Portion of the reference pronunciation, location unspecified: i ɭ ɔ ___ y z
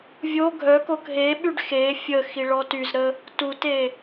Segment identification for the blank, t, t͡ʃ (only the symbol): t